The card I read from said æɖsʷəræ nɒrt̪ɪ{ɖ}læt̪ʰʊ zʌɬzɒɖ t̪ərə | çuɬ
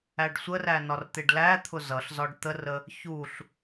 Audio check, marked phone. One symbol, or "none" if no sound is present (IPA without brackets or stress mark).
ɖ